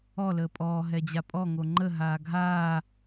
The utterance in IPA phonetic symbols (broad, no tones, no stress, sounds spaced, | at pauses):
ɔ l əː pʼ ɔː ɦ ɛ d͡ʑ a pʼ ɔ ŋ o ŋ͡ǃ ə ɦ aː ɡʱ aː